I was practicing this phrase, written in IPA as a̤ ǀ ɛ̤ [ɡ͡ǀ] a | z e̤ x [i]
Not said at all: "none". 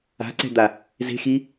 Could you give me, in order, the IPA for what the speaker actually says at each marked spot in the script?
d̪, i

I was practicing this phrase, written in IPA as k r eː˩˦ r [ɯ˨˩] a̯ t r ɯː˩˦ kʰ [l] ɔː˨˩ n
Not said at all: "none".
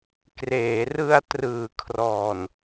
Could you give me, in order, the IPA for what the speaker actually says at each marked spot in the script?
ɯ˧, r

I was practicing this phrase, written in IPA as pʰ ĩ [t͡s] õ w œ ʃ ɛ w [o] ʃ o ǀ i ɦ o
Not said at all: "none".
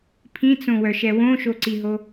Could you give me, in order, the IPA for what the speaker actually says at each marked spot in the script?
t͡s, õ

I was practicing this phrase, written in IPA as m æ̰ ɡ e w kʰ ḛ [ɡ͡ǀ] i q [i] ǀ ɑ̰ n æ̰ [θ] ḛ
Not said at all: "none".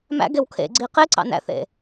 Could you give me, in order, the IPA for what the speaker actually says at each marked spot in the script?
ɡ͡ǀ, e, θ

